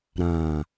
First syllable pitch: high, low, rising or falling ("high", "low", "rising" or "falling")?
low